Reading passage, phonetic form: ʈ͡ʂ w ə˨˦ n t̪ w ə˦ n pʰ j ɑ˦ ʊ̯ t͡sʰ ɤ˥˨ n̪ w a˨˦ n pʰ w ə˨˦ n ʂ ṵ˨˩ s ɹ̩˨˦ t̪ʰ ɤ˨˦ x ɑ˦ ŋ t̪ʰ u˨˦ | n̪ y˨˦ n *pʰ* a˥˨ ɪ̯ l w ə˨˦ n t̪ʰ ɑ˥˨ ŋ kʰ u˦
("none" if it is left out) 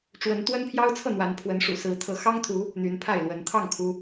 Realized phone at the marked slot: pʰ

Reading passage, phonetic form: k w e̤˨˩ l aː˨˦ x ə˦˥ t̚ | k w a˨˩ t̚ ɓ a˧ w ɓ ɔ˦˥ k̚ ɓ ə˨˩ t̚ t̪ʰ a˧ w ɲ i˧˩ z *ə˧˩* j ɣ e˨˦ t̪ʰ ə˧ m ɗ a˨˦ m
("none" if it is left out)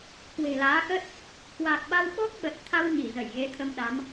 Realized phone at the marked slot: ə˧˩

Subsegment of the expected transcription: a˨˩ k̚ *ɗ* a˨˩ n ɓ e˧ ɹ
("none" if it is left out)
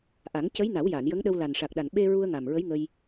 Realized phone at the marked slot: ɗ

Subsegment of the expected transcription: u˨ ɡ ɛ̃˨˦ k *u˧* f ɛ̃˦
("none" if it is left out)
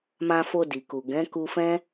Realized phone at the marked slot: u˧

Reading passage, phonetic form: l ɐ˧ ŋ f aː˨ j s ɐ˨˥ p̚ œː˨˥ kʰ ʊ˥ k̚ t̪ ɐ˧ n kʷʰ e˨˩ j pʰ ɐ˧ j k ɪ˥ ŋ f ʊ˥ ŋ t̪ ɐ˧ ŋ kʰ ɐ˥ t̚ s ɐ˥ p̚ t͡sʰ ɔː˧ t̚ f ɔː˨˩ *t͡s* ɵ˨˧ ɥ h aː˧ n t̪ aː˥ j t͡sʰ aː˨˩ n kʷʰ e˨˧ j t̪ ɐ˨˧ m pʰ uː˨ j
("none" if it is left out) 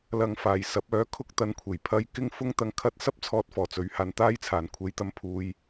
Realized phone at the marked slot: t͡s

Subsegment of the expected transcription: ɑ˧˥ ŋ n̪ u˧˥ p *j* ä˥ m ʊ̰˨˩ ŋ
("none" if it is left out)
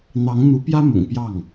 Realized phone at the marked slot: j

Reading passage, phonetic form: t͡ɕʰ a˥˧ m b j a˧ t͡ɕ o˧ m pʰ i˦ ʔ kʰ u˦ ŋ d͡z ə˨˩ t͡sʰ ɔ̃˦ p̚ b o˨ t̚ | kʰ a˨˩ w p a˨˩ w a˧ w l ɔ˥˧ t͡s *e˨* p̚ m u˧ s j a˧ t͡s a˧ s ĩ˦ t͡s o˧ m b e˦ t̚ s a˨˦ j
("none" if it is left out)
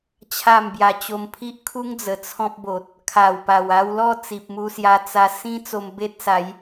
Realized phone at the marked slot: i˨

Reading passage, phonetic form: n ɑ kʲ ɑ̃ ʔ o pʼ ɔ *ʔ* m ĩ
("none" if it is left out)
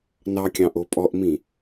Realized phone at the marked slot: ʔ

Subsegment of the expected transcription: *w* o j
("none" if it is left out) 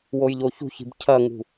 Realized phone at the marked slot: w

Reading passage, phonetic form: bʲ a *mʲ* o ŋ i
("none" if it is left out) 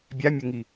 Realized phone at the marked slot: mʲ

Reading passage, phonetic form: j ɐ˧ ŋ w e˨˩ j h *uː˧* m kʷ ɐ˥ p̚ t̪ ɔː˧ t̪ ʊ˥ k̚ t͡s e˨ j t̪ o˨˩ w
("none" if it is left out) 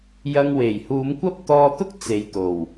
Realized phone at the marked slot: uː˨˧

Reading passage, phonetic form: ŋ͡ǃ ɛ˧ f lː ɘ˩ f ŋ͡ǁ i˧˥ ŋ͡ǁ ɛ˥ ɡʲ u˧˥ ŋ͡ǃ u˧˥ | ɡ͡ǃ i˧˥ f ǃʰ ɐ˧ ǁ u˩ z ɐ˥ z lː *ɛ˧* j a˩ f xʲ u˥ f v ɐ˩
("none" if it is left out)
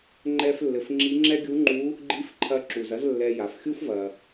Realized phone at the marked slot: ɛ˧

